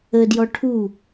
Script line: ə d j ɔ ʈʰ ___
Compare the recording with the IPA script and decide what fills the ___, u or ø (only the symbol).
u